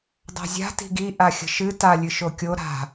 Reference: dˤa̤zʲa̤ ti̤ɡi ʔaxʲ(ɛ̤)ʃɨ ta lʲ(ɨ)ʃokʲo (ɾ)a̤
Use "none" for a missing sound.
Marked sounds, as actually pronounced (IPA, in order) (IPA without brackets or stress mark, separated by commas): ə̤, ɨ, ɾ